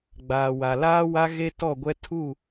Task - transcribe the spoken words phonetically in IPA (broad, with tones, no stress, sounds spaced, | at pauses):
ɡ͡b aː˨ w a˨ l aː˦ w a˦ ɣ e˦ t ɔ˦˨ ɡʷ ɛ˦ tʰ u˦˨